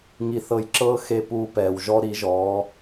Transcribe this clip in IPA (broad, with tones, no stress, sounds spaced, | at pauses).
ŋ i˧ θ ɤ˧ j ǁ ɤː˥ x e˥ p uː˥ p ɛː˧ w ʒ ɔ˥ ɾ i˧˥ ʒ ɔː˧˥